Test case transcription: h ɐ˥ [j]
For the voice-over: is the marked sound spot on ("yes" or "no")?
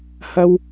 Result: no